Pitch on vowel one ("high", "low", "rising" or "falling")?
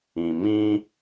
low